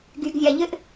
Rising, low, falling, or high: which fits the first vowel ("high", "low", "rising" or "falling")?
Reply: low